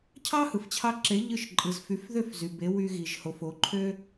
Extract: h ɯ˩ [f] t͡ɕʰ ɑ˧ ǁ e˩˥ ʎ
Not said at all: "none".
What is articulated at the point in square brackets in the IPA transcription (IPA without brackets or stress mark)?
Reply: f